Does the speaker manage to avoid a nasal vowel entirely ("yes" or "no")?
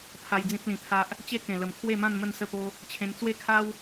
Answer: no